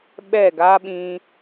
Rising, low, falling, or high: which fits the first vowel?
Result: falling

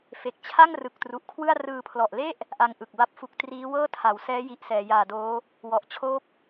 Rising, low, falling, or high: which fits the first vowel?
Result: low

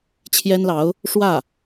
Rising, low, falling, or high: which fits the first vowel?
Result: high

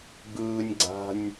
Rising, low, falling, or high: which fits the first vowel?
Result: high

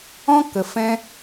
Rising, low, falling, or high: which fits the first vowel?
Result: high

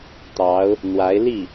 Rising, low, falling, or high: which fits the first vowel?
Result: rising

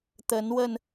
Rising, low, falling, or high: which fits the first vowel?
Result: rising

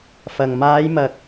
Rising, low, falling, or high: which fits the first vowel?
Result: low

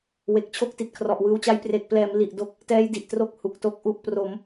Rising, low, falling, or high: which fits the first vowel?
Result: low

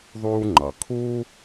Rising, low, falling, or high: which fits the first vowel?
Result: high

